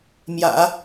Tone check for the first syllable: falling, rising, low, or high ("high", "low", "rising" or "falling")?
low